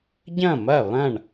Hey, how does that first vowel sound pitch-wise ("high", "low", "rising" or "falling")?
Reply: falling